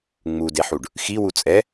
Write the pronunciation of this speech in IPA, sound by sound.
ŋ͡mudeħuɖ | xiwu t͡sʼɛ

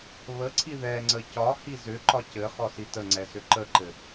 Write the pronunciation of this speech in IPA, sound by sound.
βəǀʰi ðɛŋ͡ǀə cɒ hizʏǃɒ cɘ χɔsitəŋ͡ǀɛ sʏǃəǃɘ

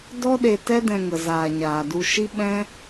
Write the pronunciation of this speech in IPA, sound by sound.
dɔ˦ɗe˧ tɛ˦dɛ̃˧ŋə˨ zaː˨ɲaː˨du˧ ʃi˦ɓɛ̃˦

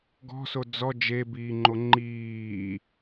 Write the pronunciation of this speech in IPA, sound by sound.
ɡɔ̤so d͡zɔ d͡ʒebiːŋ͡ǃo ŋ͡ǃiː

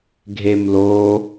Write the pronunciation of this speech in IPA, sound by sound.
ɡʱemloː

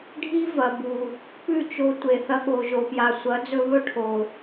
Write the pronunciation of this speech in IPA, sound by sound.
ɖʱi˦vɐ˨bu˨ | pʉ˦˨t͡ʃo˧tʷe˨ θɐ˧ɠo˨ʒo˨pja˨ sʷɐ˨˦d͡zɵ˧βɵ˦ ʈʰo˨

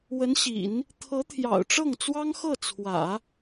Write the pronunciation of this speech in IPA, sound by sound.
wə˧˥nɕḭ˨˩˦n | t̪ʰɤ˧˥t̪ʰjɑ̰˨˩ʊ̯ʈ͡ʂɤ˥˩ŋt͡swɑ˥ŋ xɤ˥˩t͡sʰwä̰˨˩˦

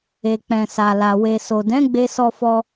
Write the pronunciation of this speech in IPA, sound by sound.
e˨ k͡pɛ̃˨sa˨la˨ we˨so˨dɛ̃˨˦ ɡ͡be˦ sɔ˧fɔ˧

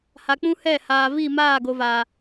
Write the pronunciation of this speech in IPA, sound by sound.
ha˨k͡pũ˦hɛ˦˨haː˨ vi˦˨ maː˦˨ɡo˨va˨

